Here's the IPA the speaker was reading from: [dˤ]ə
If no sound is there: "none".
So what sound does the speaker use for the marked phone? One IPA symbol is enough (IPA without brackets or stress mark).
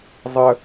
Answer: zˤ